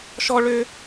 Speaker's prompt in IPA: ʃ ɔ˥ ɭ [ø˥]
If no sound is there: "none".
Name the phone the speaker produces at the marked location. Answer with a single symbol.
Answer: ø˥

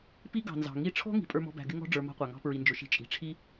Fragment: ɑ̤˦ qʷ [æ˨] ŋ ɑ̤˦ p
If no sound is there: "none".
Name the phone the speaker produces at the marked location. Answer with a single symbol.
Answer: æ˨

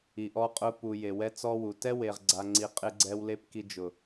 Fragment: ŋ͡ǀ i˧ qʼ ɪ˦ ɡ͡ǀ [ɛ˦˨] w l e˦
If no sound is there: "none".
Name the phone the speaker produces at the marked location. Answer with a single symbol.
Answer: ɛ˦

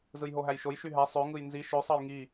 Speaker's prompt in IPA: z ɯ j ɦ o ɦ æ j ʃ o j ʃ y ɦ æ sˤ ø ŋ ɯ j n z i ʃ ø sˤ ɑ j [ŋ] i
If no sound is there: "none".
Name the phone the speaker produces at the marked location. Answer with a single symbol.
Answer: ŋ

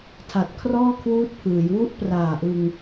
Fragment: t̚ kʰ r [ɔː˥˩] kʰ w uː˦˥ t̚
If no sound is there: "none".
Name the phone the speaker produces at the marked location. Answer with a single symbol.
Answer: ɔː˥˩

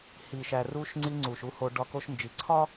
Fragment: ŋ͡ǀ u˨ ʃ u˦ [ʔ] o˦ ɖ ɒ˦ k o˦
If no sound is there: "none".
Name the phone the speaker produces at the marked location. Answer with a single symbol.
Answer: h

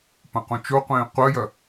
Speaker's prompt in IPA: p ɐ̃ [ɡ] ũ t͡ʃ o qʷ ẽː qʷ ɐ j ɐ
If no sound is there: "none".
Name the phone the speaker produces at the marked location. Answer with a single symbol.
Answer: q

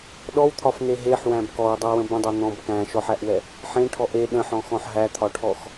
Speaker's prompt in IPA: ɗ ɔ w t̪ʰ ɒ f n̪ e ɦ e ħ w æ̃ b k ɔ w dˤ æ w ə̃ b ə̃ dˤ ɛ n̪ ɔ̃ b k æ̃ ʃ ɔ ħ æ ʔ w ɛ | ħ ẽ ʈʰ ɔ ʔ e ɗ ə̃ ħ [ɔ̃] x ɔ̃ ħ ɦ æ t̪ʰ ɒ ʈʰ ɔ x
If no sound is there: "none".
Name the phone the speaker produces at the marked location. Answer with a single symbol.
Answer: ɔ̃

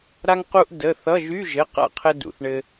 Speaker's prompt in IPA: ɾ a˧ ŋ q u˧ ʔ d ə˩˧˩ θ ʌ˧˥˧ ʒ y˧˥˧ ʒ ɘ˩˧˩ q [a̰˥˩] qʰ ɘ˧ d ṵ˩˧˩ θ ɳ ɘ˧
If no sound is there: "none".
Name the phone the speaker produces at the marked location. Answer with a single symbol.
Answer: a̰˥˩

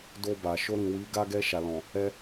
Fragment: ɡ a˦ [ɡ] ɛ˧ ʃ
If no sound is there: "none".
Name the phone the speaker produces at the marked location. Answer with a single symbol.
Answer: ɡ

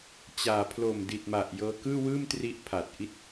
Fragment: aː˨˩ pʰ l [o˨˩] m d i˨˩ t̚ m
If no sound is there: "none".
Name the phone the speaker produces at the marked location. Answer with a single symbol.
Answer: o˨˩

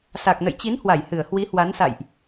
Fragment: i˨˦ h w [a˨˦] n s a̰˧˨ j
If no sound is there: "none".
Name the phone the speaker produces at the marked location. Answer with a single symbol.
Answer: a˨˦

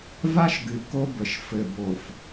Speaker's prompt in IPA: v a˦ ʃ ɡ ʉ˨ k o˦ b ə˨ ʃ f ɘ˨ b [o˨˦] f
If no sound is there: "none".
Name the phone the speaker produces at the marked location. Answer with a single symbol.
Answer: o˨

